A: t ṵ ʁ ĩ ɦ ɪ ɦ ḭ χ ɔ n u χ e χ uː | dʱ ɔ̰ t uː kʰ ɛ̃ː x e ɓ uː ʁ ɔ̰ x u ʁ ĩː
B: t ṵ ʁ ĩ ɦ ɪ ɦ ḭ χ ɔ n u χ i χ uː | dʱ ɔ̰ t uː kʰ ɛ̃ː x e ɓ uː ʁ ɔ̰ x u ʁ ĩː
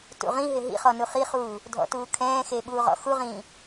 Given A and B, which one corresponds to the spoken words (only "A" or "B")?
B